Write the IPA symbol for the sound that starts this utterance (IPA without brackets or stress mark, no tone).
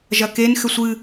ʒ